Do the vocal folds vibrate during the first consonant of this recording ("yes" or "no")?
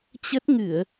no